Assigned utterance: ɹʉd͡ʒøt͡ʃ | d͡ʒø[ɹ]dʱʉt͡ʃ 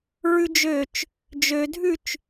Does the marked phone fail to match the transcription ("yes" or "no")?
yes